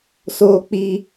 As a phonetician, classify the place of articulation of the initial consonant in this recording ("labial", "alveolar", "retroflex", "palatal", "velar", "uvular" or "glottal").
alveolar